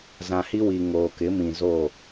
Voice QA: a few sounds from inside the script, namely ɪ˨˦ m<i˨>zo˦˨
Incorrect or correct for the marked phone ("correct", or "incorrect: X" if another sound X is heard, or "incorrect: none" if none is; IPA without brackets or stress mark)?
incorrect: ĩ˨